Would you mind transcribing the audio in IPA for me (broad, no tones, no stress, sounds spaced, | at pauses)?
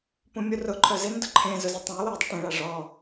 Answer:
p ũ mʲ u r ʊ ǃʰ œ z ɪ n d ʊ ǃʰ ẽ z ʊ z o tˤ œ̃ j w œ i̯ dˤ i ʈ ẽ ɭ a ʐ ɔ